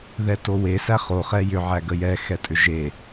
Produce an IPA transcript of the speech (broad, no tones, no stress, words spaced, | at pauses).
ðɛtowe sæχo χɛjʏ ʕæɡəjɛ xɛtʼʏʒe